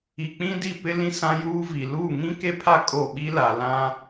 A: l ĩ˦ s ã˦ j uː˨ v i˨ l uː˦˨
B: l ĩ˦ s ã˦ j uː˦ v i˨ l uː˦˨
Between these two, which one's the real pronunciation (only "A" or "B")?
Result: B